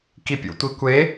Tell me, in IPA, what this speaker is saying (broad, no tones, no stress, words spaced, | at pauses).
kipʲṵtʷikʷe